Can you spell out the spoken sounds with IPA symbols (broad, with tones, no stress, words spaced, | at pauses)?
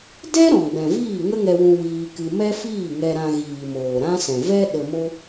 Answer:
dɛ˦ ɾɔ̃˨ɡ͡bɛ̃˨viː˦˨ ŋə˦ŋɛ˧wũ˧ wiː˧kɨ˧ mɛ˦fiː˦˨ŋɛ˧ ɾã˧ɣiː˨moː˨ ɾã˦sɛ̃˨ vɛ˦ ɗə˧mo˦